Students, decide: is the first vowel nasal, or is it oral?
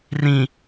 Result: nasal